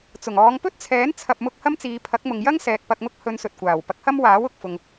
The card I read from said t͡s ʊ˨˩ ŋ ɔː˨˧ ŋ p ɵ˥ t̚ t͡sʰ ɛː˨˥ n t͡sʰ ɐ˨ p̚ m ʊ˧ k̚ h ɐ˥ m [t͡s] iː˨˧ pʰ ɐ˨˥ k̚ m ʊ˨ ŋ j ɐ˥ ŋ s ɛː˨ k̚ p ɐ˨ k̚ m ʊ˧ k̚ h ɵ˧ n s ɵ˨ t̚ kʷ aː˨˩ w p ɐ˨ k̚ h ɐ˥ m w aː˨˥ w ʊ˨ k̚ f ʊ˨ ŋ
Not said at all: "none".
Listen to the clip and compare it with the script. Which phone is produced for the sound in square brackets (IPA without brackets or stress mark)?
t͡s